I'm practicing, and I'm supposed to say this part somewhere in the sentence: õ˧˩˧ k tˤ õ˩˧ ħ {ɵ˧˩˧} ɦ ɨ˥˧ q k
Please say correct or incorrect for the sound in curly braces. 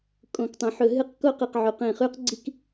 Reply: correct